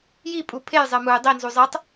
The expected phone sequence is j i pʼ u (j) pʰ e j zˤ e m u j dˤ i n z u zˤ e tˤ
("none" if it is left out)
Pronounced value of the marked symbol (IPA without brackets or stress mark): none